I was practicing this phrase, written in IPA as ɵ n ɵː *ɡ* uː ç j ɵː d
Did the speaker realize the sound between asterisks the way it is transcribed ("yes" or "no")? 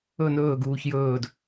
yes